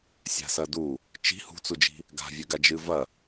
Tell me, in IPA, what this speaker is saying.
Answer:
sʲ a̤ s ɐ d u | t͡ʃ i̤ h ṳ t͡s u d͡ʒ i̤ | ɡ a̤ vʲ ʉ ɡ a d͡ʒ ɨ v ɐ

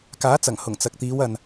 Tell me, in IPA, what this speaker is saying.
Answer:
k aː˨˥ t͡s ɐ˨˩ ŋ h ʊ˨˩ ŋ t͡s ɐ˨ k̚ t̪ iː˨˧ w ɐ˨ n

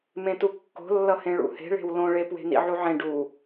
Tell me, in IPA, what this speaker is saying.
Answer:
m ẽ t u kː o̤ lː ʌ h ẽ ɭ ṵ h e̤ ɭ e̤ w l õ ɭ e p w e̤ n ḭ ʕ u ʕ ẽ ɖ u

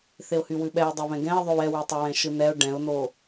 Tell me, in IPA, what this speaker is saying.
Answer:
θ e ʊ̯ h y w ʉ ɓ ɛ ʊ̯ dˤ e β ɛ̃ ɡ ɛ̃ ɪ̯ ðˤ o w ɛ w y tˤ e w ɛ̃ ʃ ɯ n ɛ ʊ̯ ɖ ɛ̃ ʊ̯ n o

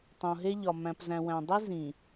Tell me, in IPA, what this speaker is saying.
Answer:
tˤ õ˨ ɦ e˦ ʎ ɒ˨ m æ̃˨ p z æ̃˨ w æ̃˨ dˤ i˦ z ĩ˨

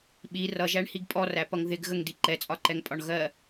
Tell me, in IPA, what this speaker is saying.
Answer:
ɓ i r ʌ ʒ æ ɳ h i ɡ pʼ ɔ r æ p ʌ ŋ ð ɪ ɡ ɣ ə ŋ d i ǃ ɛ t͡sʼ ɒ ǃ ɛ ŋ pʼ ɒ ɳ ɣ ɜ

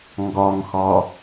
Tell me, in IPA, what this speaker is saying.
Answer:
ŋ ɡ ɒ ŋ x ɒ

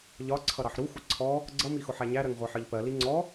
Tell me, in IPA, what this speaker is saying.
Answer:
ʎ ɒ ǀʰ ʌ ɾ ɑ ħ ɾ u xʷ ʌ ǀʰ ɔ | ɡ͡ǀ ʌ m i x ʊ ħ æ ɲ æ ɾ ɜ ŋ ʁʷ ɑ ħ ɜ ʎ p ɜ l i ŋ͡ǀ ɔ

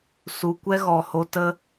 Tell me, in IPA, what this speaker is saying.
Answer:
s u˨ kʷ ɛ˦ ɣ ɔ˨ h o˧ t ə˦

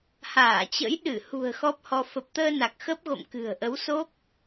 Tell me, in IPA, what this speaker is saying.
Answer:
h aː˧˩ t͡ɕ ə̰˧˥ j ɗ ɨ˧˩ h ṳ˨˩ ə̯ x ɔ˦˥ p̚ h ɔ˧ f ə˨˩ p̚ t̪ əː˧ n a˨˩ k̚ x ə˦˥ p̚ ɣ o̰˧˨ m k ɨ̤˨˩ ə̯ ʔ ə˨˦ w s o˦˥ k̚

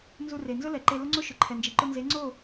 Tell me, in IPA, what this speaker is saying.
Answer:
n z u˧ r e˨ n z ʊ˦ l ɛ˨ ǃ e˧ l ʊ˦ ŋ͡ǀ o˦ ʃ ʊ˨ ǃʰ ɛ˨ n d͡ʒ i˨ ǃ ʊ˧ n z e˨˦ ŋ͡ǀ o˦˨

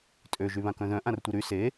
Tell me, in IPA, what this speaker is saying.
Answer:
tʼ ø ʒ y β ã k œ̃ ð œ̃ ʔ ã r tʷ i ɾ y s e

